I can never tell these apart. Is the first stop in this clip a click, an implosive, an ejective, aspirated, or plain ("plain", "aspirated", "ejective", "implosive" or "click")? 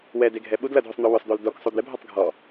plain